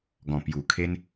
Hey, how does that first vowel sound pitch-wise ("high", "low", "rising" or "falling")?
low